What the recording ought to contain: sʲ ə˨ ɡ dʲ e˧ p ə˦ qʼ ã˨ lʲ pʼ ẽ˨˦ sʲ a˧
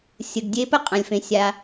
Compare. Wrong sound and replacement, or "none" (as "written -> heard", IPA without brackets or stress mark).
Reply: pʼ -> f